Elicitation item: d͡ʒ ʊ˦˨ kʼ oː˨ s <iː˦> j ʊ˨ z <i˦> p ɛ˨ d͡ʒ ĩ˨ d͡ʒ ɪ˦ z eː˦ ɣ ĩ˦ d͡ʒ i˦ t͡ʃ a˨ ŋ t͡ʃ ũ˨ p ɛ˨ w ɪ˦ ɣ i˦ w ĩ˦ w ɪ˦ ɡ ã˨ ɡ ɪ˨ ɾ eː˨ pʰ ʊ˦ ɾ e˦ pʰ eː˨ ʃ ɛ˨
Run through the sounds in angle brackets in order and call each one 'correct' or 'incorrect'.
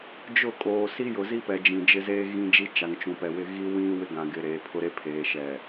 incorrect: i˦, correct

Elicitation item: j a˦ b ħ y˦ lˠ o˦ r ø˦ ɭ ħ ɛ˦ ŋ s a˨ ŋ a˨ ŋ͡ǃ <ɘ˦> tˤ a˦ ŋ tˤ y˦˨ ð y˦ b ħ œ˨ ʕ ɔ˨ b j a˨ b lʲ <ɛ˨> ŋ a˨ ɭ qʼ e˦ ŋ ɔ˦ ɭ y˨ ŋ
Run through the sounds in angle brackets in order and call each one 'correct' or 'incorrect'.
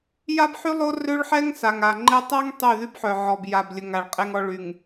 incorrect: e˦, incorrect: ə˨

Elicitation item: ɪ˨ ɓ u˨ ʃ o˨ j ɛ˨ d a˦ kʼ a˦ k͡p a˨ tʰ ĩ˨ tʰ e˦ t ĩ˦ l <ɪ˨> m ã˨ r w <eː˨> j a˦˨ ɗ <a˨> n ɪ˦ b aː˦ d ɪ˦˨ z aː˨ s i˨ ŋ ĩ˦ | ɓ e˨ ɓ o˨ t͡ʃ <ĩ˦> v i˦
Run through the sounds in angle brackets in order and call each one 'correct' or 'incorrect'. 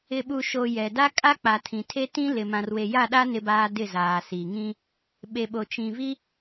correct, incorrect: e˨, incorrect: a˦, incorrect: ĩ˨

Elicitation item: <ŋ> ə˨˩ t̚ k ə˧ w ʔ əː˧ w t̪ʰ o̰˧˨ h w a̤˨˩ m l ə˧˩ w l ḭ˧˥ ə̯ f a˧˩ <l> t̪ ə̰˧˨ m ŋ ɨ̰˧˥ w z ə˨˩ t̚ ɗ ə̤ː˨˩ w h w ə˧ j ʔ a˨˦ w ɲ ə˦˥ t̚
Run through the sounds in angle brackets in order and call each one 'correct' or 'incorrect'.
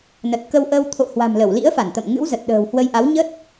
incorrect: n, incorrect: n

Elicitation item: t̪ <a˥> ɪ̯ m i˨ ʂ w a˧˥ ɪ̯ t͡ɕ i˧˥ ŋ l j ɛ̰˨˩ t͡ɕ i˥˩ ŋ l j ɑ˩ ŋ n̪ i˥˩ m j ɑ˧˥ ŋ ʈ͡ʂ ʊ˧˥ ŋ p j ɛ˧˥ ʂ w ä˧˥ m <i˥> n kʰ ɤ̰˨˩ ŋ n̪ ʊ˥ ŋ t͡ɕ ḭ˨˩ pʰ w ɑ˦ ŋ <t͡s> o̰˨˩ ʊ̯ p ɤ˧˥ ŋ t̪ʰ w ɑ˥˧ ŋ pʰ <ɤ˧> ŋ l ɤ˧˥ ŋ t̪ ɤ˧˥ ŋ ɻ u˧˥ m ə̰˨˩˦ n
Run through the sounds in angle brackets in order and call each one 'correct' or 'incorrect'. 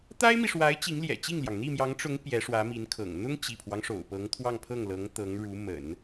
correct, incorrect: i˧˥, incorrect: ʂ, incorrect: ɤ˥˩

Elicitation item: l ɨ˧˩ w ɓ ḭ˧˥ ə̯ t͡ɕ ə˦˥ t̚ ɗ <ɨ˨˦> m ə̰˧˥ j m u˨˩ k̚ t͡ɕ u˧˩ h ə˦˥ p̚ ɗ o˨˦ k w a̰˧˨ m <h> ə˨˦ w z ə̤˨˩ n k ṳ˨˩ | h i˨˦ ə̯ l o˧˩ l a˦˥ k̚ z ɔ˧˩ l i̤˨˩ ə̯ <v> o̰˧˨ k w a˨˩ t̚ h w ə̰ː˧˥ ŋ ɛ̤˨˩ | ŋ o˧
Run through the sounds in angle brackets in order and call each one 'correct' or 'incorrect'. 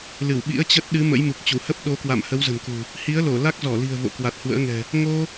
correct, correct, correct

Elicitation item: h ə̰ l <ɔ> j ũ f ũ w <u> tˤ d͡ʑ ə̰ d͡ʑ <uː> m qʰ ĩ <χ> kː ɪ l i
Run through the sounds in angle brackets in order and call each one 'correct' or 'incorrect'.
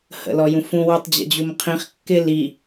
correct, correct, incorrect: u, correct

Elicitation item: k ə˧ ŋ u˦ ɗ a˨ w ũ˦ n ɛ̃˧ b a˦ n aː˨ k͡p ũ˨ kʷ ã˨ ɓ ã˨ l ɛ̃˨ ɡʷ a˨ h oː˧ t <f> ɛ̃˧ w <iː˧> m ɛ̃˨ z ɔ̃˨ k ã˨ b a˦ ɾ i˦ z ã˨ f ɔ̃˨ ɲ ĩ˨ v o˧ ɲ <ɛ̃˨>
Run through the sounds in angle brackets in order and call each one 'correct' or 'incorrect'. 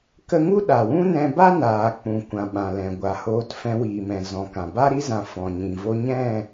correct, incorrect: iː˨, incorrect: ɛ̃˦˨

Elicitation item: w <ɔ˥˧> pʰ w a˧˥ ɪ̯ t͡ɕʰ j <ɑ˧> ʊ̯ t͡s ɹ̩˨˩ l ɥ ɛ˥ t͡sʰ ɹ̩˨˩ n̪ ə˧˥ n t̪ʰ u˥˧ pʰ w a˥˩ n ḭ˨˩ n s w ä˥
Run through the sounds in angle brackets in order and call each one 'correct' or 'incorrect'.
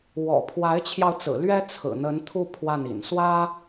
incorrect: ɔ̰˨˩, correct

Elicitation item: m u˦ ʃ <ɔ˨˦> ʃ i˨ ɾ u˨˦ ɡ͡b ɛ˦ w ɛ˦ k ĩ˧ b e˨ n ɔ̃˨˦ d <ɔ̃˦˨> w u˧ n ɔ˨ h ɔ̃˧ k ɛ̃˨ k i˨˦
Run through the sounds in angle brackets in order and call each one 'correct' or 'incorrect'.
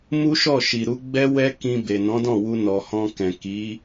incorrect: ɔ˦˨, correct

